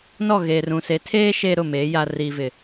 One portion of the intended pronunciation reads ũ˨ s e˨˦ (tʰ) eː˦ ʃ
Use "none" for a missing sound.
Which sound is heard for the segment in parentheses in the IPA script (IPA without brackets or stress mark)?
tʰ